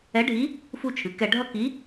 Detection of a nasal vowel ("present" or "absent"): absent